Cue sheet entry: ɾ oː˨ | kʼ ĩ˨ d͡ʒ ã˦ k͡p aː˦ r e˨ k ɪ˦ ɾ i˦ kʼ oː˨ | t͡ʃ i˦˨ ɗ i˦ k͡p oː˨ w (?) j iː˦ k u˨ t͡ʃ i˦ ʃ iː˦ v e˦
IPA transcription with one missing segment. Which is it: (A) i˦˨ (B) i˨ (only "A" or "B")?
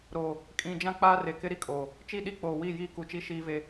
A